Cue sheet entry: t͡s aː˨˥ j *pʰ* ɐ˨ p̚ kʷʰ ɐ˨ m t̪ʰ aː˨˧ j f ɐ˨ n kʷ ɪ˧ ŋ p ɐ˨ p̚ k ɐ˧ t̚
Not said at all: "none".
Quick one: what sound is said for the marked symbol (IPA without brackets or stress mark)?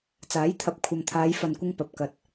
t̪ʰ